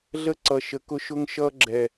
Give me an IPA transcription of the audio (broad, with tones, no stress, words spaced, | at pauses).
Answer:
ɮə˦˨ ǀʌ˨ʃə˨kʊ˦ ʃʊ˦ŋ ʃʌː˦ɡ͡ǁɛ˨